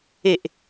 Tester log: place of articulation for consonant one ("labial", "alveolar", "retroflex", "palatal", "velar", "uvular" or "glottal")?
glottal